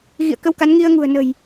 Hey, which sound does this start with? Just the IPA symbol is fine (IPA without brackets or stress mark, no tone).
ɣ